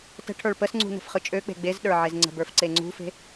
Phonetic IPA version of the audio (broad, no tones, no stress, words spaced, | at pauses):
tə̤ʈʰə˞ɭ pəsŋ͡ǀṳ nə̤fχɯt͡ʃʼøk͡pe̤ ɡ͡bezɗə˞ ʕezŋ͡ǀə̤bə˞f ǀeŋ͡ǀṳfe̤